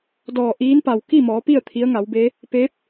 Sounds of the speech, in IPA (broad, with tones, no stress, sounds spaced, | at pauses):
d ɔː˧˩ ʔ iː˧˥ n p a˩ w k i˥˨ m ɔː˩˧ p i˥˨ ə̯ t̪ʰ i˧˥ ə̯ ŋ a˩˧ w b eː˧˥ | p eː˧˥ p̚